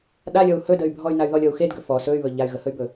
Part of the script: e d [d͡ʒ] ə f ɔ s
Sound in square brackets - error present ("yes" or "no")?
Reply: yes